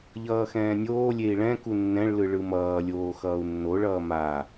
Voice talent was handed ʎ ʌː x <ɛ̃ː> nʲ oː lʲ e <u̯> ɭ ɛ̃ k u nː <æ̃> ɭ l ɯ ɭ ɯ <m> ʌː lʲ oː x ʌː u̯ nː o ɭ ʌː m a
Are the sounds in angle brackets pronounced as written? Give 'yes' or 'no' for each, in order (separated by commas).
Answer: yes, no, no, yes